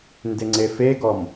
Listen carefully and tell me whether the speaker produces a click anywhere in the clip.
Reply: yes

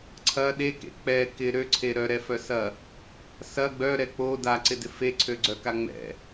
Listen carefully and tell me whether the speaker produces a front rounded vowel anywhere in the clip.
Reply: yes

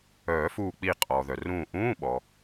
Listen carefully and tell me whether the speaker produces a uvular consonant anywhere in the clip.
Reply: yes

